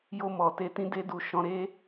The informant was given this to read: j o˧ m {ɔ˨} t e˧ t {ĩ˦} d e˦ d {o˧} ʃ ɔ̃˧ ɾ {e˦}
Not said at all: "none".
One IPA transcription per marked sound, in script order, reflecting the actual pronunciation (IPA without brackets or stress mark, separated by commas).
ɔ˨, ĩ˦, u˧, e˦